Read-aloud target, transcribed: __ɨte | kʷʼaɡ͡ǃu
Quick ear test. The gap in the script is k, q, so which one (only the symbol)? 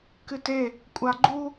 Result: k